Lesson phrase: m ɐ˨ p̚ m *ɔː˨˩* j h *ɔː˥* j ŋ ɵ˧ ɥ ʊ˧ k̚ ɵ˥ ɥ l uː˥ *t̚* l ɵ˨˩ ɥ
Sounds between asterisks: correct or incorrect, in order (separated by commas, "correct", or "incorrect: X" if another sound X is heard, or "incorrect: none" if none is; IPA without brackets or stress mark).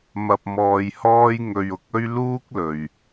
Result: incorrect: ɔː˨, correct, incorrect: k̚